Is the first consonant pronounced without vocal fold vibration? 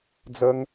no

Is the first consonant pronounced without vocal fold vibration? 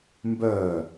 no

